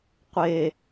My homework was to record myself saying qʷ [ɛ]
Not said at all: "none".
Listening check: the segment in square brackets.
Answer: e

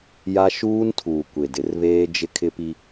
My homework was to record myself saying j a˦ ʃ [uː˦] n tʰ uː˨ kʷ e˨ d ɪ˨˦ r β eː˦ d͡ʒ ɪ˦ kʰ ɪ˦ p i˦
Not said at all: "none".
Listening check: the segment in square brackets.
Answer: uː˦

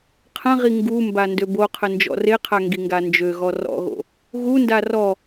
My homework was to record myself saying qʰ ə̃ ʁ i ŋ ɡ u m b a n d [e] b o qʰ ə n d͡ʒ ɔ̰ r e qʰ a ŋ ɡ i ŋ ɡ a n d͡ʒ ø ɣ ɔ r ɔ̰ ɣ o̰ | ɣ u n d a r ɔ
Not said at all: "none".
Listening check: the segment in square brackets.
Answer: ø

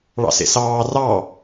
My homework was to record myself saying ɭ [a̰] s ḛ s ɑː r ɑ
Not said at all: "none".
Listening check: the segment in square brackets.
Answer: ɑ̰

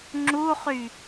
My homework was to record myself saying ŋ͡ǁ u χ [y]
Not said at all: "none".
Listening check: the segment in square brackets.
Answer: y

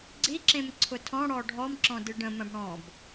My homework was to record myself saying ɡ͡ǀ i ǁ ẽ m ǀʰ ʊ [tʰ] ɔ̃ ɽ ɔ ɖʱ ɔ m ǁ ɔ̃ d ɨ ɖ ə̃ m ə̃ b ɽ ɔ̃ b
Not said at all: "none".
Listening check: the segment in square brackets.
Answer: tʰ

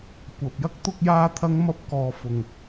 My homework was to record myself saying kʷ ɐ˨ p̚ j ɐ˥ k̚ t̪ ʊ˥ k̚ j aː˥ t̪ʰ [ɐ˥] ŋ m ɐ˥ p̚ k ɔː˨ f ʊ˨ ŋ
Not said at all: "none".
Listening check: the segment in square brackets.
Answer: ɐ˥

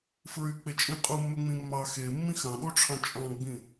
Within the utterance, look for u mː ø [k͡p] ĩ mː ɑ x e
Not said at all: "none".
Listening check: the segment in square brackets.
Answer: ŋ͡m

